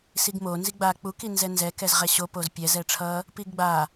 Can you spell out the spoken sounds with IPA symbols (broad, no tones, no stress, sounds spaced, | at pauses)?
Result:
s i ɡ m o n z i ɡ͡b a k͡p u k i n z ɛ n z ɛ k ɛ z ʁ ɛ ɕ o p o z pʲ ɛ z ɛ ʈ͡ʂʰ ʌ | p i ɡ ɡ͡b a